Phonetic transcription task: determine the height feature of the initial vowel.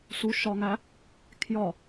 high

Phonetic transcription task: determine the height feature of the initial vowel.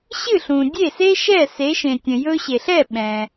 high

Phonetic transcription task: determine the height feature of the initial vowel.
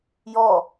mid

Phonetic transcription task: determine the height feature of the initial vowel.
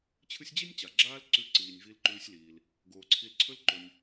high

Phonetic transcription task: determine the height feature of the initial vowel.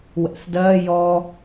mid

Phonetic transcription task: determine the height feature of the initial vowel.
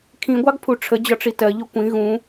high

